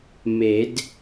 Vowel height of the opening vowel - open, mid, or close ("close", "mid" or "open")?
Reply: mid